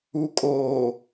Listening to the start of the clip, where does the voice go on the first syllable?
low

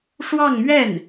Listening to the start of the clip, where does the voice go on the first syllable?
falling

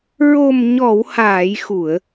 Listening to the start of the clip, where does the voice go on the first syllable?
low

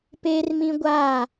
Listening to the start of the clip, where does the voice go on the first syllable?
high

